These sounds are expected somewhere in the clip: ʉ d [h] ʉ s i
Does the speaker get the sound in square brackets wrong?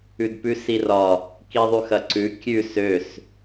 yes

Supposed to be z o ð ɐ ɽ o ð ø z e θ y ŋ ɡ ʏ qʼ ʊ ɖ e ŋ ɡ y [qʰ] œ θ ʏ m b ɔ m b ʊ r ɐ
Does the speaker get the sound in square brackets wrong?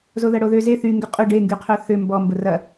no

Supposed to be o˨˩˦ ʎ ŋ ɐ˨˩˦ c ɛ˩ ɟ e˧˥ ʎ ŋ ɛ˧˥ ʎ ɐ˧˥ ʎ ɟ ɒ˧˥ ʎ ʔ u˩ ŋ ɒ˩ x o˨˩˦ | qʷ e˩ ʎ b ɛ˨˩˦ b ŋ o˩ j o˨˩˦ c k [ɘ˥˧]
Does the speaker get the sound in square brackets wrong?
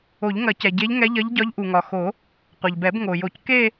yes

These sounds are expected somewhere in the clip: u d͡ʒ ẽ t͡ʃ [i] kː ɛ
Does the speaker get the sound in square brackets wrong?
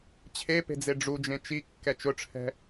no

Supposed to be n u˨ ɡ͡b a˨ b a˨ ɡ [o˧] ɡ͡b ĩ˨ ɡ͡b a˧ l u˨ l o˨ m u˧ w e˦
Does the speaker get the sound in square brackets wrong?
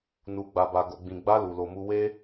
yes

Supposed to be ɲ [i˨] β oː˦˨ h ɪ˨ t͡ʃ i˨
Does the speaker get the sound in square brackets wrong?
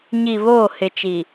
no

